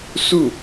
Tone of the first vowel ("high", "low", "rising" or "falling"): falling